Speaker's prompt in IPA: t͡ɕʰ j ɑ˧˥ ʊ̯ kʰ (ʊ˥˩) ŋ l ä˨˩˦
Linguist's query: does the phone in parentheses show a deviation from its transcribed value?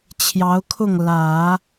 no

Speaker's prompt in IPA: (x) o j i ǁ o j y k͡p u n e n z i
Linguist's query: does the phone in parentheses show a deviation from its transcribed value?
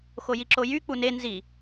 no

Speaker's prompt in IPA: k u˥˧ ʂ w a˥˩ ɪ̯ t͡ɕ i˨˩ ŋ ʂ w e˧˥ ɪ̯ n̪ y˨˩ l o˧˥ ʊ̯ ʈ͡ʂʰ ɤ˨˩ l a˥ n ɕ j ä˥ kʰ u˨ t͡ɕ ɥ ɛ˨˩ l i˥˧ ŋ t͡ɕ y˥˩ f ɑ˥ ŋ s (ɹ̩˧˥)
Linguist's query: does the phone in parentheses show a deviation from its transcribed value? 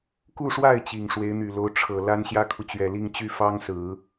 yes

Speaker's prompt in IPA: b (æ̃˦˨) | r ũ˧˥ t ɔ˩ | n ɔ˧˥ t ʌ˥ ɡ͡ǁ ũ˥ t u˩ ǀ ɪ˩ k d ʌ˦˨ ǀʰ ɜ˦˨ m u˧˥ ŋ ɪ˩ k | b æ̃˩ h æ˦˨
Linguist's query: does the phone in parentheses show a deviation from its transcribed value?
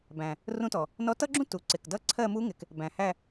yes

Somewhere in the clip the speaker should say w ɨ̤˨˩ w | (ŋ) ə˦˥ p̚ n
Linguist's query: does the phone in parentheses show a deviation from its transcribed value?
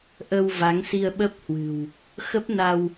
yes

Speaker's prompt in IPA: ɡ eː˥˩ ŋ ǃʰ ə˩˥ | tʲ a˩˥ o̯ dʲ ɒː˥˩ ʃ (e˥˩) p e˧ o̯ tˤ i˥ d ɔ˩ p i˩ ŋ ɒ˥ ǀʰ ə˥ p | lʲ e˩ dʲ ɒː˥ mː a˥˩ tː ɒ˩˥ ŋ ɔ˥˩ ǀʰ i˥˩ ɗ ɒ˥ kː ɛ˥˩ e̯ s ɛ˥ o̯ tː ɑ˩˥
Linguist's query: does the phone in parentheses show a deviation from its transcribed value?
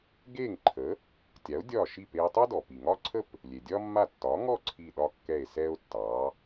yes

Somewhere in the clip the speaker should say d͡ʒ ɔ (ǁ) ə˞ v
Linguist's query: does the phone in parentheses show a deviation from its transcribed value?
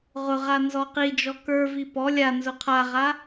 yes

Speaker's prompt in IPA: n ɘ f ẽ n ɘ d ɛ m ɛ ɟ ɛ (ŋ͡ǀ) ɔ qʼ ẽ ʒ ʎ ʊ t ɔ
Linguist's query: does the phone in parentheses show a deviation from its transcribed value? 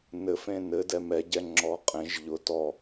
yes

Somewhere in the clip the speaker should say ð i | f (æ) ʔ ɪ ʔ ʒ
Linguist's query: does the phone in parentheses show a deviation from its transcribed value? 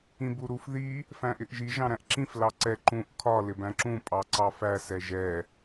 yes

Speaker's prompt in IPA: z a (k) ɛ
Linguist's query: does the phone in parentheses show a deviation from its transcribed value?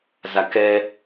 no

